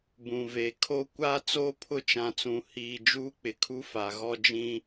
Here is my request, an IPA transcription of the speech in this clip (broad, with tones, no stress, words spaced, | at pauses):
bũ˨ve˨ kʰo˦ kʷa˦ t͡soː˦pʰʊ˦˨ t͡ʃã˨t͡sũ˨ hiː˨ d͡ʒuː˦k͡pɪ˨kʰu˦ fa˨ ɣɔ˦ d͡ʒĩ˦